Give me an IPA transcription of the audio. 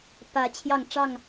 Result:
pä˨˦ t͡ɕʰjɑ˥˨ŋʈ͡ʂɑ˥˨ŋ

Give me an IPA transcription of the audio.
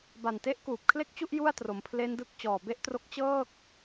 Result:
ba˨˩nte˦˥ʔ kuː˨˩p̚kʰle˥˩k̚t͡ɕu˥˩ʔ ju˥˩a̯tro˩˦mpʰle˦˥ndɯ˦˥k̚ t͡ɕɔː˨˩be˥˩ʔtro˦˥k̚ t͡ɕɤː˥˩k̚

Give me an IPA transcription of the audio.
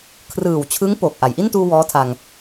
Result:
kʰrɯː˨˩wt͡ɕʰɯ˦˥ŋ poː˨˩k̚ʔa˩˦j ʔi˥˩ntuː˧ wɔː˦˥tʰa˧ŋ

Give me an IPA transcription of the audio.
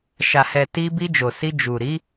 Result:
ʃa˨hɛ˨ti˧ bi˧d͡ʒo˨si˧ d͡ʒu˨ɾi˨˦

